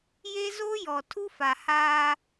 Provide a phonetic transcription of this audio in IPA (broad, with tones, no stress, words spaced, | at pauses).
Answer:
je˦ zo˦jɔ˨ tʰu˦fa˨haː˦